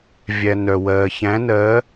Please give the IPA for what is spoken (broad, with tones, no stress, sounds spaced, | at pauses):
vʲ æ˨ n œ˨ w ɜː˨ ç æ̃˧˥ n ɜ˧˥